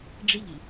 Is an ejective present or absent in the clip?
absent